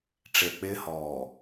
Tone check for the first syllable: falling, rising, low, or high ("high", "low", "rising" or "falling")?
low